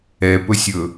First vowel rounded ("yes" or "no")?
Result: no